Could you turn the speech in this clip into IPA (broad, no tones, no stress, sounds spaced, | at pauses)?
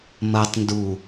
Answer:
m ɐ tˤ n d u